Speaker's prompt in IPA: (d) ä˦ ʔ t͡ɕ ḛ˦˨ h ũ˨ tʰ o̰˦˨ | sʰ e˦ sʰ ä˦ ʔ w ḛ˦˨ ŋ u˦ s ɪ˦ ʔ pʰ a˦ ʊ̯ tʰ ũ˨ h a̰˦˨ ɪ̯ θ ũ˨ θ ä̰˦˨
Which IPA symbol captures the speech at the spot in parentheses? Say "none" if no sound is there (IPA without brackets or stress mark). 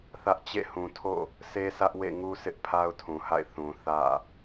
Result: θ